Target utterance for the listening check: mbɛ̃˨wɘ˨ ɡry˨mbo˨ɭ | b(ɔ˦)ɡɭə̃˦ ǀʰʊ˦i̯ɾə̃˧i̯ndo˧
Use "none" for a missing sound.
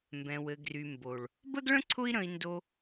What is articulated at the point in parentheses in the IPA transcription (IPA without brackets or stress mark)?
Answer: ə˦